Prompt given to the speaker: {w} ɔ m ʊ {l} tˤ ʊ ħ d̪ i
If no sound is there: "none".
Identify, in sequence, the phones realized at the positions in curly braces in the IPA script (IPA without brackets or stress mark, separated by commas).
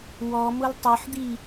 w, l